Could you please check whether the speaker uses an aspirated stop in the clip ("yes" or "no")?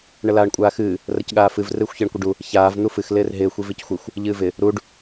no